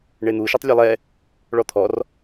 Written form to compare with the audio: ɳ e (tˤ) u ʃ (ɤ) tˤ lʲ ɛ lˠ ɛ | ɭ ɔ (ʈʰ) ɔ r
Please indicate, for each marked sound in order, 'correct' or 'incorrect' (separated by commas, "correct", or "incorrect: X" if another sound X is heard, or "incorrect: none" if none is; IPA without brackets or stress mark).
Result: incorrect: n̪, correct, incorrect: t̪ʰ